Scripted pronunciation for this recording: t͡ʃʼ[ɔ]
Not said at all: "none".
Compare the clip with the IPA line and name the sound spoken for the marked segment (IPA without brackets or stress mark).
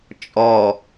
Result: ɔ